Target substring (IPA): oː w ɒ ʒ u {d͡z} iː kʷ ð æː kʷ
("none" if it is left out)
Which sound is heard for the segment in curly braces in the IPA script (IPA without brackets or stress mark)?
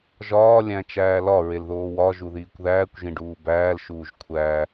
ð